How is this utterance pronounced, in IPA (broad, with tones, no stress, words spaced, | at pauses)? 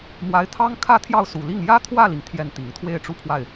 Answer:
mwa˧˥ɪ̯t̪ʰɑ˥ŋ kʰä˥t̪ʰjɑ˥˩ʊ̯su˨˩li˥˩ŋ jä˥t̪ʰwä˥˩li˩ŋ t̪ʰjɛ˥˩nt̪i˨˩ŋ t̪ʰwe˥˧ɪ̯ʈ͡ʂu˥˧ pʰwa˥˩ɪ̯